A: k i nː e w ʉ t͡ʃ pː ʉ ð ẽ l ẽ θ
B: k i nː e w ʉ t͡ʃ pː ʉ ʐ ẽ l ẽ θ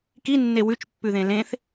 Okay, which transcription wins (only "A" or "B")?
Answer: A